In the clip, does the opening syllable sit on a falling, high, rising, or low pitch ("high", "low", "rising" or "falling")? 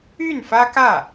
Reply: falling